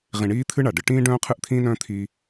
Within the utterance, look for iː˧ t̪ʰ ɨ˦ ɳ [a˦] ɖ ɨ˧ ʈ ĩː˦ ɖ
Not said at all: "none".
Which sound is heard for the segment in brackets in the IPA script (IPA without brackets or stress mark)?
a˨